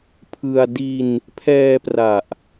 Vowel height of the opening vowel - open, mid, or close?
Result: close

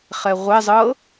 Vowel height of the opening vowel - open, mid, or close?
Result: mid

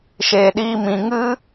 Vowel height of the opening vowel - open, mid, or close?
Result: mid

